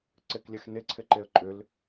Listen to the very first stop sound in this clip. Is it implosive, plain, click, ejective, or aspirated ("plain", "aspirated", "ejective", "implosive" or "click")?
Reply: click